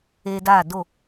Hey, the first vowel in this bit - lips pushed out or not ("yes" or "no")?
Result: no